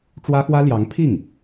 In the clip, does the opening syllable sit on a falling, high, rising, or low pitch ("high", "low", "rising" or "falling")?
high